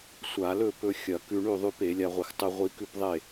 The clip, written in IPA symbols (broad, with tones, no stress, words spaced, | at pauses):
sʷa˧˩˧lɵ˥˩pɵ˧ xʲɐ˧˩˧kʉ˧ ɳʉ˥˩ðˤʉ˧p e˧˩˧lʲa˧ʁʷɨ˧˩˧x tˤɨ˧ʁʷi˧kʉ˥˩pðˤe˥˩